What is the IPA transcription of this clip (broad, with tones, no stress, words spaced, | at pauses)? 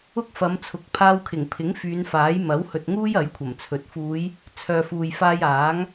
ʊ˥k̚fɐ˨˧mt͡sʰʊ˨˥k̚ pʰaː˧wkʰɪ˨˩ŋpʰɪ˨˥ŋ fyː˨˧nfaː˨˥j mɐ˨˥whɵ˨t̚ŋuː˥j ɐ˨˥jkʷʰɐ˨˩mt͡sʰɵ˨˥t̚ fuː˨˧j | t͡sʰœː˨fuː˨j faː˧j aː˨˥ŋ